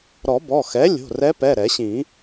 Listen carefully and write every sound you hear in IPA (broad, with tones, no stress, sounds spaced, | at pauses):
ɾ ɔ˨˩˦ b ɔ˩˧˩ x ɛ˩˥ lʲ o̤˩˧˩ r ɛ˧˥ p ɛ˩˧˩ ɾ ɛ˨˩˦ ɕ ĩ˨˩˦